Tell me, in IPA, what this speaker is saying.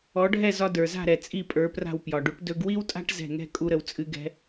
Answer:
ɔ˩˥ ɖʱ ɛ˥˩ z ɒ˧ d ə˞˩ z a̤˥˩ ɾ ɛ˩ t͡sʼ i˥˩ pʼ ə˞˩˥ p r a̤˥˩ w p j ɒ˩ ɖ u˩˥ ʈ d ɵ˧ ɡ w i˥ w tʼ a̤˥ ʈ z ɛ̤˥˩ ŋ ɛ̤˥ kʼ u˥ ɾ ə˧ w t͡sʼ ɨ˥ ɡ ɛ̤˥

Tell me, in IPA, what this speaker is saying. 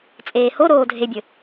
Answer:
t͡sʼ eː h o ɾ oː dʱ e bʲ ə

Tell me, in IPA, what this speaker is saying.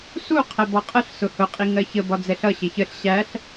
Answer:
s u qʰ ɛ b ɔ qʼ ə ɬ s ʊ h ʊ qʼ i ŋ ɜ ç ə b ɒ d͡z ɛ ɬ ʌ ɕ ɪ ç ə ɬ ɕ æ ɬ

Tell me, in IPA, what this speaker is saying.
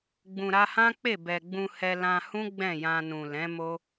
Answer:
ɡ͡b ũ˨ ɾ a˧ h ã˦ k͡p e˦˨ b ɛ˨ ɡ͡b ũ˧ h ɛ˧ l ã˧ h ũ˦ ɡ͡b ɛ̃˦˨ j ã˧ n ũ˨ l ɛ̃˨˦ m o˦

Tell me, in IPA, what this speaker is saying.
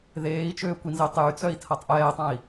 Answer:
ð eː i̯ t͡ʃ øː kʷ i n z e tˤ j y t͡s œ i̯ tʰ ɐ tˤ ʔ ɛː tˤ ã i̯

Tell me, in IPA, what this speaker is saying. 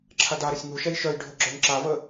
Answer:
ǁʰ a d a ɾ ə sʲ ŋ u ʃ ɛ j ʃ œ j ɖʱ ɵ ɡ͡ǁ œ ŋ ǁ a v ə

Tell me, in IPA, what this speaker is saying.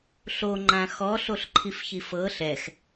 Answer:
ɬ o ŋ͡ǃ ã x ɔ ɬ o ɬ ǃʰ i f ç i f ɤ ɬ ɛ x

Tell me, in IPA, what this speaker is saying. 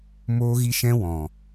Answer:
m oː˦ ɣ i˦ ʃ ɛ̃˦ w ɔ̃˨

